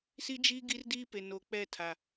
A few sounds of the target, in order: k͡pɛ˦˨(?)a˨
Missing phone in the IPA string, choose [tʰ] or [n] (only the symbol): tʰ